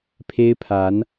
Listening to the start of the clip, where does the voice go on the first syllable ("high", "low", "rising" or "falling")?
high